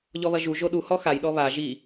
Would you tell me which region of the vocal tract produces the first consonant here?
palate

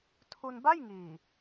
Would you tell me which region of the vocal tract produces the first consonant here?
tongue tip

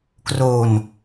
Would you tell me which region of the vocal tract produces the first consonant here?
velum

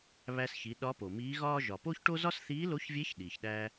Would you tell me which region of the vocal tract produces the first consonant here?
lips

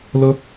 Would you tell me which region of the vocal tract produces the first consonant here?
tongue tip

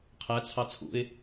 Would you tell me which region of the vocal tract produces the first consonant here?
uvula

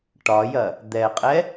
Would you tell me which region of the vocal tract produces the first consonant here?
retroflex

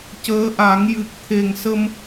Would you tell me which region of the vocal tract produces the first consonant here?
palate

